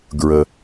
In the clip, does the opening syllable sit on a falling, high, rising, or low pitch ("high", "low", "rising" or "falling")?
low